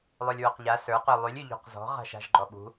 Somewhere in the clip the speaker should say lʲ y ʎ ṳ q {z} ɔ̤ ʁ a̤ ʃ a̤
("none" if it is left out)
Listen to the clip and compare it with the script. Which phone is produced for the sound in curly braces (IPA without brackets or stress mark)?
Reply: z